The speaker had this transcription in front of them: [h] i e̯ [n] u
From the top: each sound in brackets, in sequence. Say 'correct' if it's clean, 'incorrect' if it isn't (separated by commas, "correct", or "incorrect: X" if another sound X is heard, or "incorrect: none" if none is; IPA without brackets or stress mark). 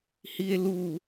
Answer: correct, incorrect: l